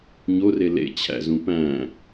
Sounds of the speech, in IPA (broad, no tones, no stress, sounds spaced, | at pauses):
ɲ o r e l ḛ t͡ɕʰ æ̰ z ũ p æ̃